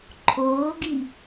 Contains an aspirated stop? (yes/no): yes